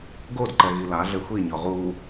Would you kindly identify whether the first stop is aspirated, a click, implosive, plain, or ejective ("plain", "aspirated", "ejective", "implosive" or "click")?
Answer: plain